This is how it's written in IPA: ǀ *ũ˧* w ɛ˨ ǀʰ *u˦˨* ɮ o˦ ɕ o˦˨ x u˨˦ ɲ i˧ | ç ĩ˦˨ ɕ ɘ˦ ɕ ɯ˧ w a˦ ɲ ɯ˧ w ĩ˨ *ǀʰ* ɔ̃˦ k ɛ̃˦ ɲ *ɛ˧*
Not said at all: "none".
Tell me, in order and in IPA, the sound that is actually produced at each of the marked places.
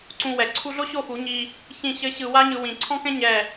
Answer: ũ˧, u˧, ǀʰ, ɛ˦˨

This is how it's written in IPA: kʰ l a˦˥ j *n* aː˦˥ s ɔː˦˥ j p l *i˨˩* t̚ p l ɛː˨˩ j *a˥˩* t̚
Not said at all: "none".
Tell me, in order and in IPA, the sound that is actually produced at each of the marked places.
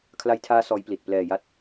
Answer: tʰ, i˨˩, a˦˥

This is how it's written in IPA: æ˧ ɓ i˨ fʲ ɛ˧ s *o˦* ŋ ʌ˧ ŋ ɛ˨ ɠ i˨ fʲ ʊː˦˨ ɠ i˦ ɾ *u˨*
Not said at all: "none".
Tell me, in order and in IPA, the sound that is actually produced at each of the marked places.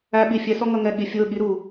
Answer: ɔ˦, u˨

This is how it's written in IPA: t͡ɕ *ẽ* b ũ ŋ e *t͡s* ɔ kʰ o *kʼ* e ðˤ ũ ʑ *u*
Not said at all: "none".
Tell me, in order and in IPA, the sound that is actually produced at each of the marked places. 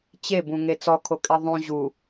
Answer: e, t͡s, kʼ, u

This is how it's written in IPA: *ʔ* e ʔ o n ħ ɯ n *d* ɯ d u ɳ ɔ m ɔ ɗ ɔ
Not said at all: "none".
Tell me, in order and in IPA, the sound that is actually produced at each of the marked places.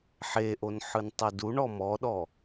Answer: ħ, tˤ

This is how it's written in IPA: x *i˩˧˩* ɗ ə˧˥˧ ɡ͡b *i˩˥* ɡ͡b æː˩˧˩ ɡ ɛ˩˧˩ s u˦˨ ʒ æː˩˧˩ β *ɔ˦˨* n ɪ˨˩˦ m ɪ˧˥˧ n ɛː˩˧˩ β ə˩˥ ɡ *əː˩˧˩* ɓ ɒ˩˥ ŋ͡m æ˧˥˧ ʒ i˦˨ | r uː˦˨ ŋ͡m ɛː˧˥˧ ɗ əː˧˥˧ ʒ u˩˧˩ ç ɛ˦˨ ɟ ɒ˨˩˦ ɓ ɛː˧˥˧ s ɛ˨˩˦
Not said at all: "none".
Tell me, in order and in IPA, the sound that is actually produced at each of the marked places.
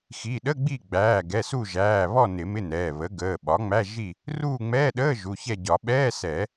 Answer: i˩˧˩, i˦˨, ɔ˦˨, əː˩˧˩

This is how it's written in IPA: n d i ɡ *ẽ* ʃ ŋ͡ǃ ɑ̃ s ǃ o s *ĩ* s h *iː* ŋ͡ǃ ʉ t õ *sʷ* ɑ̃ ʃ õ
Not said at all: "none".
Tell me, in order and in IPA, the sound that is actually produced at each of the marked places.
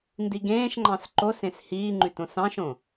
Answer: ẽː, ẽ, iː, s

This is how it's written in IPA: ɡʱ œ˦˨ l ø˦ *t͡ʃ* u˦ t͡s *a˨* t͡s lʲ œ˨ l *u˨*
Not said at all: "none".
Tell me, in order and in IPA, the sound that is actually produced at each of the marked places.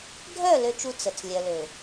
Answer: t͡ʃ, ə˨, ø˨

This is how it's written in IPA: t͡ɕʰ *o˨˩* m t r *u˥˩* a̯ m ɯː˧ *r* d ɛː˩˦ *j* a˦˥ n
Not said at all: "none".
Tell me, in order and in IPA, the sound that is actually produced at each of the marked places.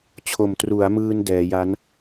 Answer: o˨˩, u˩˦, n, j

